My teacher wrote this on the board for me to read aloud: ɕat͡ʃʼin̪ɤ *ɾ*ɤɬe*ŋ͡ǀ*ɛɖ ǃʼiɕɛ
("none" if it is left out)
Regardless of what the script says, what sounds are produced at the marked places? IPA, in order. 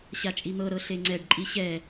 ɾ, ŋ͡ǀ

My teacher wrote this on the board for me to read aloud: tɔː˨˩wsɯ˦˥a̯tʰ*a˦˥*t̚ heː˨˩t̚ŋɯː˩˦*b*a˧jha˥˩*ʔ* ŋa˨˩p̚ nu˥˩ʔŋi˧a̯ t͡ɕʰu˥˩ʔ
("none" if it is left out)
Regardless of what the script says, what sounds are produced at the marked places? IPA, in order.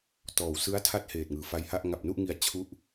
a˦˥, f, ʔ

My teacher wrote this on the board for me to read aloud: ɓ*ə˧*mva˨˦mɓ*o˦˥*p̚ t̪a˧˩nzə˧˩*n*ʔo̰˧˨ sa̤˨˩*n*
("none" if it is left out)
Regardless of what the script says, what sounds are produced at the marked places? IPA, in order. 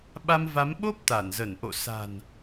a˧, o˦˥, n, n

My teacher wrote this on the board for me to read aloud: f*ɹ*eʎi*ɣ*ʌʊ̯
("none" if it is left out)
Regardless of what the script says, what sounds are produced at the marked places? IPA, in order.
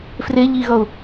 r, ɣ

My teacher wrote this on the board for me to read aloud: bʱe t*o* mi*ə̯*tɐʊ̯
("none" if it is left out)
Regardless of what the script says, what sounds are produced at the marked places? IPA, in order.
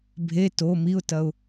o, ʊ̯

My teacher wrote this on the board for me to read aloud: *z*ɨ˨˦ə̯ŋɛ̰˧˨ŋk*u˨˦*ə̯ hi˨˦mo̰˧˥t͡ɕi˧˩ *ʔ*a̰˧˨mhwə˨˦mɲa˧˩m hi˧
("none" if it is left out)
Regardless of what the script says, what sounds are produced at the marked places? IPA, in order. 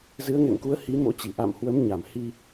z, u˨˦, ʔ

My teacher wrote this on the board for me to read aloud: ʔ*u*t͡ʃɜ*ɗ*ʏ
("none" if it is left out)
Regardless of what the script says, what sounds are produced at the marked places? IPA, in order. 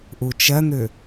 u, n̪

